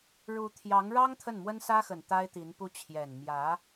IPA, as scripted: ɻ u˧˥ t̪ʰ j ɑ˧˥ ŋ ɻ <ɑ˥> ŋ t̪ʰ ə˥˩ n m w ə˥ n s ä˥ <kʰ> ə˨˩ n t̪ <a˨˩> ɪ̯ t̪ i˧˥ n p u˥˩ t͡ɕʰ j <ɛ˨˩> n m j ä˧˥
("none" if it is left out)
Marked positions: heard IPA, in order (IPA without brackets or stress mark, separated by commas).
ɑ˥, x, a˥, ɛ˨˩